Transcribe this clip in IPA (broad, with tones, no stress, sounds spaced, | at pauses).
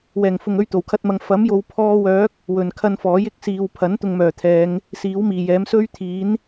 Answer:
w ɛː˨˩ ŋ f ʊ˨ ŋ ɵ˥ ɥ t̪ o˨˩ w kʰ ɐ˥ t̚ m ɐ˧ ŋ f ɐ˨˥ m j o˨˧ w pʰ ɔː˧ w œː˨˥ k̚ | w ɵ˨ n kʰ ɐ˧ n f ɔː˨˥ j ɪ˨˥ k̚ s iː˨ w pʰ ɐ˨˥ n t̪ ʊ˧ ŋ m œː˨˩ t̪ʰ ɛː˨˧ ŋ | s iː˨˥ w m iː˨˩ j ɛː˨˥ m s ɵ˥ ɥ t̪ʰ iː˨˥ n